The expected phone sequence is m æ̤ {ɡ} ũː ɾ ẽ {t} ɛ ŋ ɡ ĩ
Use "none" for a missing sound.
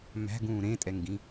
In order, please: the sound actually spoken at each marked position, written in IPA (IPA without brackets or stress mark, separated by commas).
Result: ɡ, tʼ